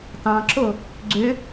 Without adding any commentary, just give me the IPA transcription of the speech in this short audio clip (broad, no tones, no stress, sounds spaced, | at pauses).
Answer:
t ɑ̃ ǁ o | ɡ͡ǀ ø